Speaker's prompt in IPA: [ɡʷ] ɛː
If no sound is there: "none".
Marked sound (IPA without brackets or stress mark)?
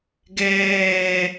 ɡ